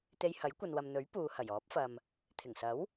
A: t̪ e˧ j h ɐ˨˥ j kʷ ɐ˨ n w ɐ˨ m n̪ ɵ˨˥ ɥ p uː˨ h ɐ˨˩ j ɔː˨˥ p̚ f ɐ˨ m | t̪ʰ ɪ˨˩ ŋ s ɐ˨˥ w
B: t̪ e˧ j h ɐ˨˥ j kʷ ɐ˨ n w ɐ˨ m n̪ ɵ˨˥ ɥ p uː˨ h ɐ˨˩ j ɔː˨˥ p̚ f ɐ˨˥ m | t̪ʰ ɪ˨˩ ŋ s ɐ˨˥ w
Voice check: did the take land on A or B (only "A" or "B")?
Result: A